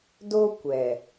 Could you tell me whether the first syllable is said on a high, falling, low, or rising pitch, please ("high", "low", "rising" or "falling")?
high